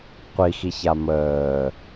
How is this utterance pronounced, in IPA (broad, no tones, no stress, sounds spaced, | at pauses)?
qʷ i x i ç a m əː